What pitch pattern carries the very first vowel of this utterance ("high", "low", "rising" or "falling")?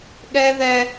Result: high